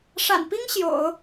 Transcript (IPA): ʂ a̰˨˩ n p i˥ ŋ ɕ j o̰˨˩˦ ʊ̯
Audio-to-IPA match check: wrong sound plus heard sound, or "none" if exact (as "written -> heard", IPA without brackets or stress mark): none